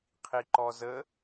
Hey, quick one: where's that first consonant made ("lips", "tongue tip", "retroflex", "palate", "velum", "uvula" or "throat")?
uvula